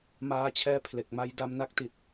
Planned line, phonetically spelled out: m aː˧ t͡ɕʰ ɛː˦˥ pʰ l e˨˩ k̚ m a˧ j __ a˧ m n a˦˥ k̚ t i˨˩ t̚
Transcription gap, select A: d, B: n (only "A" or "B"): A